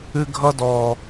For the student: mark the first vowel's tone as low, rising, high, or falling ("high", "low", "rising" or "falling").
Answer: high